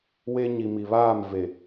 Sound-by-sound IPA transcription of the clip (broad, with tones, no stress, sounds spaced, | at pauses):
w e˦ ɲ i˨ m i˨ β aː˦˨ m v e˨